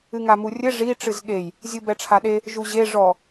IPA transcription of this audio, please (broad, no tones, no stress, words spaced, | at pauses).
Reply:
ɨŋamurʲɘ ʐi ʈ͡ʂɨzɠej | zʲubɛʈ͡ʂʰaɗe | ʒuʑe ʐɔ